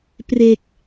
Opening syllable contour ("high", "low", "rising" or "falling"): low